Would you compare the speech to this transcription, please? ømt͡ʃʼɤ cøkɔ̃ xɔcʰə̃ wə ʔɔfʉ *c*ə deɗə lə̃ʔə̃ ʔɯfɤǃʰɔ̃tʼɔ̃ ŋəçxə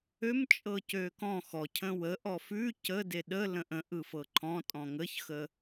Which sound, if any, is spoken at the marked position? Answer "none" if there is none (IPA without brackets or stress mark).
c